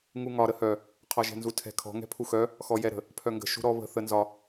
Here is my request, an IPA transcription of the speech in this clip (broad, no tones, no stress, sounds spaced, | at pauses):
ŋ u ŋ ɒ ɾ ə h œ | qʰ ɒ ʒ ɛ̤ n z u tʰ ɛ̤ kʰ ɔ̤ ŋ ɛ̤ pʰ u x œ | x ɔ j ɛ ɾ ə̤ | pʰ œ ŋ ɡ ə̤ ʃ ṳ ɾ ɔ β ə̤ θ ə n z ɒ